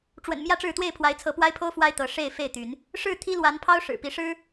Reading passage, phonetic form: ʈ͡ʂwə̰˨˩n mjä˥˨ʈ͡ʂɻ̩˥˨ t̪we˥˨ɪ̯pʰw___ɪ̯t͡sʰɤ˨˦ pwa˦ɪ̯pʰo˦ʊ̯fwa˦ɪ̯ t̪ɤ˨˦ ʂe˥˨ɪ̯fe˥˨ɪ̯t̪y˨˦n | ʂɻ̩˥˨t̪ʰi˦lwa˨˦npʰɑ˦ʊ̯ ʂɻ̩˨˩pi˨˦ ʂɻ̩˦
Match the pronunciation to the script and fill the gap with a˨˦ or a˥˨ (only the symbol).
a˨˦